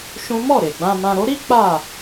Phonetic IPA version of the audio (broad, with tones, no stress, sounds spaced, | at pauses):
ʃ ũ˦ m ɔ˦˨ ɾ e˨ ɡ͡b ã˧ m ã˧ ɾ o˦ ɾ i˦ k͡p a˦˨